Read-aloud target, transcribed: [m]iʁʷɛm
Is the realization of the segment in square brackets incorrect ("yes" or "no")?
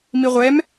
no